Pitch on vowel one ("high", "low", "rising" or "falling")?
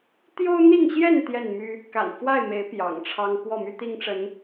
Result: high